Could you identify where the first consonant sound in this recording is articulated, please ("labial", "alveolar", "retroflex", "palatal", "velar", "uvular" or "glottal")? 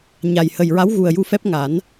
palatal